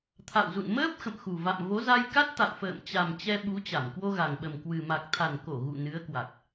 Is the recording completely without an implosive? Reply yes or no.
no